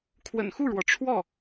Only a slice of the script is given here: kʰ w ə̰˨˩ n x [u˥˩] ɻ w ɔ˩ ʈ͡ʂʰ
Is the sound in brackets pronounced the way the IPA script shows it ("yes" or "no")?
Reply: yes